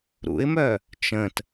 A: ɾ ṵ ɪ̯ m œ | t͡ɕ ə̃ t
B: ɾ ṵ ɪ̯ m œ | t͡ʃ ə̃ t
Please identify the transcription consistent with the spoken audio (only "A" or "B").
B